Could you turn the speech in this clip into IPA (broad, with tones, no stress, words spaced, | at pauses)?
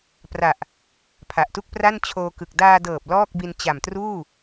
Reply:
pra˨˩ʔ | pʰa˨˩ʔtu˥˩k̚pra˥˩n t͡ɕʰoː˧kɯ˨˩k̚ daː˧dɤː˨˩p̚ lɔː˥˩k̚bi˧n t͡ɕa˨˩mtruː˥˩